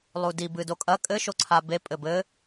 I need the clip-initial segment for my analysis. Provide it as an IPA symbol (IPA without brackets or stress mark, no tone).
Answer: lˠ